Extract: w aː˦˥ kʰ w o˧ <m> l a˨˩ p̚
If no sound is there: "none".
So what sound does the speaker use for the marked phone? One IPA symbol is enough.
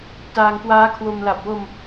m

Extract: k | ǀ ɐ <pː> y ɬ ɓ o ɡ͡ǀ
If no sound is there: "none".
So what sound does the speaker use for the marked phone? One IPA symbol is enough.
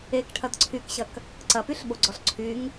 p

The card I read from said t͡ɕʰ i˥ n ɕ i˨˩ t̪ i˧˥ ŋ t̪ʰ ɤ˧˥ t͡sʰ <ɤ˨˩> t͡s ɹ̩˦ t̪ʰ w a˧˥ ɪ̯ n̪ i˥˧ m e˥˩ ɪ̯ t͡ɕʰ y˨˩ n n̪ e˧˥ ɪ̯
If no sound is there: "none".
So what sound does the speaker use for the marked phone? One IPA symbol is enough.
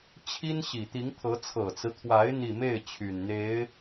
ɤ˨˩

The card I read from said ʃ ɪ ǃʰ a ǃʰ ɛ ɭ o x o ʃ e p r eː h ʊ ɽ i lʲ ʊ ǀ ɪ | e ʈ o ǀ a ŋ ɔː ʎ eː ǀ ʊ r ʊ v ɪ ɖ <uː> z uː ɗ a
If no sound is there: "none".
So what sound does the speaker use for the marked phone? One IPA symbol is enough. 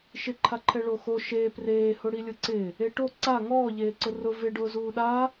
ʊː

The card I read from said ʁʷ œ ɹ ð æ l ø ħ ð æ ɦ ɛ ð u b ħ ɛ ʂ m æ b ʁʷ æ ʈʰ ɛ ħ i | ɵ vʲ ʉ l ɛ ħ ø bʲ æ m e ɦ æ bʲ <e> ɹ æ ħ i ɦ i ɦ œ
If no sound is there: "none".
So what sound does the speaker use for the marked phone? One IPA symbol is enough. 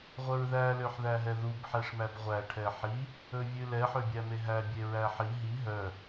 e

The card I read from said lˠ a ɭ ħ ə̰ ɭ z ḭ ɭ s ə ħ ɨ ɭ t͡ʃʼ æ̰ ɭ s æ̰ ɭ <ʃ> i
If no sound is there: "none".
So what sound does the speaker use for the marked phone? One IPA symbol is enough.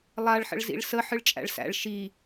ʃ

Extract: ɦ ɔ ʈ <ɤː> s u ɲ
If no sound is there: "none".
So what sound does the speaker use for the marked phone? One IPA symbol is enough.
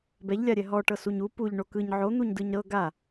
ɤ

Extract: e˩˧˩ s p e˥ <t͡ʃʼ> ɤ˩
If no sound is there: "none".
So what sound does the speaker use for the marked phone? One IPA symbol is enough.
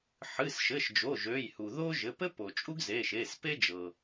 d͡ʒ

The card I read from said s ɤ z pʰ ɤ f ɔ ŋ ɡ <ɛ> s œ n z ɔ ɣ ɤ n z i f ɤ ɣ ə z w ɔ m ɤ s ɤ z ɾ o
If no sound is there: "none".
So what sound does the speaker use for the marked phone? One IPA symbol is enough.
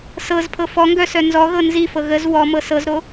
œ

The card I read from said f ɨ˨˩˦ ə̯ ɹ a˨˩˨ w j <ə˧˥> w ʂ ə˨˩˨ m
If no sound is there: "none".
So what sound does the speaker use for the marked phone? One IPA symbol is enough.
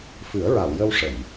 ə˧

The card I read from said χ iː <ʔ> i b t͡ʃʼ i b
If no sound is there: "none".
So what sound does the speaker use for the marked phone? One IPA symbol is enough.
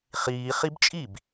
χ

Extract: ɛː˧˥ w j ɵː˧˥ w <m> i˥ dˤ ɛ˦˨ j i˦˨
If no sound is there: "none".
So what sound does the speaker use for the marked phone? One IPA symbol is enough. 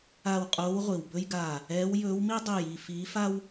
m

